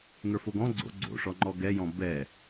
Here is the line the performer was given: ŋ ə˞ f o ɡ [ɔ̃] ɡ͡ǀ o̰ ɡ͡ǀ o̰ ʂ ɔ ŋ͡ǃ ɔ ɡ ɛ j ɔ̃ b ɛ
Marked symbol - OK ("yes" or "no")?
yes